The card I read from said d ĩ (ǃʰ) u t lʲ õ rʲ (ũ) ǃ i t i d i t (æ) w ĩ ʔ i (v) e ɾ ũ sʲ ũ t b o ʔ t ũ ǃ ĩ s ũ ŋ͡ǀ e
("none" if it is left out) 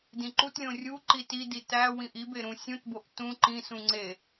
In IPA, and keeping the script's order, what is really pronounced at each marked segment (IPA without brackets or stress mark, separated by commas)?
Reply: ǃ, u, æ, b